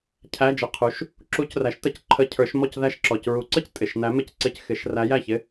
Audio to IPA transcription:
cʰ æ˧˥˧ d͡ʒ ə˩˧˩ qʰ u˩˥ ʃ | ǁ u˧˥ c r æ˩˥ ʃ t ə˨˩˦ c ǃʰ ə˧˥˧ cʰ ə˞˨˩˦ ʃ m ɔ˥˨ c ð æ˥˨ ʃ ǁ ɔ˩˧˩ c ɹ u˨˩˦ ǀ ə˥˨ c tʼ ɪ˩˧˩ ʃ n æ˧˥ m ɪ˧˥˧ c ǀ ɪ˧˥ c x ɪ˨˩˦ ʃ r æ˧˥ j æ˥˨ ç ɪ˧˥˧

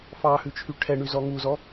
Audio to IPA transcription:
f ɑ h ʉ t͡ʃʰ y ʈʰ ɛ ɳ y z ɔ ŋ u z ɔ

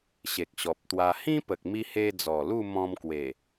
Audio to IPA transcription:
ɕ e˨ k̚ ɕ ɔ˨ p̚ t̪ w a˧ h ĩ˦ p ə˨ k̚ m i˧ h e˧ d͡z ɔ˨˩ l u˥˧ m ɔ̃˧ m k w e˨˩

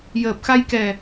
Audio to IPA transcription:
j əː˨˩ p̚ x a˧ j k ɛ˨˩

